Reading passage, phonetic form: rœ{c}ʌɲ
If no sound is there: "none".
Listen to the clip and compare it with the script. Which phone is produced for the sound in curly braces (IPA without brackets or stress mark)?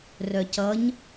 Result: c